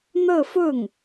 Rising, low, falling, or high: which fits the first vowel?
falling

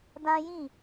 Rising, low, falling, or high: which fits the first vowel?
high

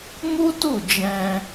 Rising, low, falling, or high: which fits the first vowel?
high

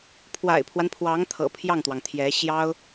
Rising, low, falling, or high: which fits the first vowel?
low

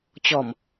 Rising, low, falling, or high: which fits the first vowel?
low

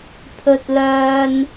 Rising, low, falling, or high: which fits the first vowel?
high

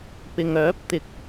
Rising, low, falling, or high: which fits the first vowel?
low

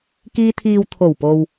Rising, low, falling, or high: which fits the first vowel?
high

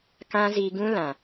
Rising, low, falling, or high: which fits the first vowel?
high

